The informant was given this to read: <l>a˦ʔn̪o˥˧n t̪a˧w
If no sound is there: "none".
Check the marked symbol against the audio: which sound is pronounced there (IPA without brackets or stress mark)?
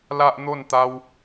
l